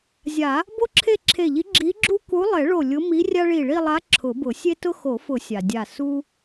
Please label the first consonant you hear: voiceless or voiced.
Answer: voiced